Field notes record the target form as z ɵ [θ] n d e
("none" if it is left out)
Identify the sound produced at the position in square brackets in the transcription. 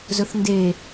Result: θ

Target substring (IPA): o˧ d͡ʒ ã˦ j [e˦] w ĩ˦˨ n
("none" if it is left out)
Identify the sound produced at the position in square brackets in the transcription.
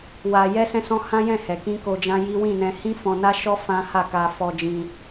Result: i˦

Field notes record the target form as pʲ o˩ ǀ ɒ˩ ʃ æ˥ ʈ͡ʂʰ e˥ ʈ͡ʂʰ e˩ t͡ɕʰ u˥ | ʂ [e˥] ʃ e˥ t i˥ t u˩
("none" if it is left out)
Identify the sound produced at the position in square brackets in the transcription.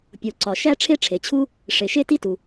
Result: e˩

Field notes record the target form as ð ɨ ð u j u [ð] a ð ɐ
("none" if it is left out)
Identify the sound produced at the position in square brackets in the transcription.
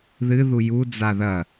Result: d͡z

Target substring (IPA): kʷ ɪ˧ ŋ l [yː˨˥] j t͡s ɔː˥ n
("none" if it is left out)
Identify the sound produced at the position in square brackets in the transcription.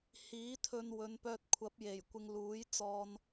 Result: uː˨˥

